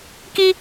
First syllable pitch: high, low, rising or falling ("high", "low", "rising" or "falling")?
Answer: high